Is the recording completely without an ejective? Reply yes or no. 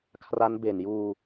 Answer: yes